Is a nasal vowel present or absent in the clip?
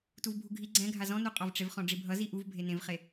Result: present